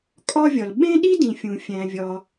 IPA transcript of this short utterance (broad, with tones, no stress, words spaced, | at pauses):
kʼɒ˥vʲɒ˨l ɓẽ˥ɗi˥dĩ˨fʲũ˨ fʲæ̃˦vʲɒ˦